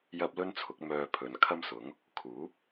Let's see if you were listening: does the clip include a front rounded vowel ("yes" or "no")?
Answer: yes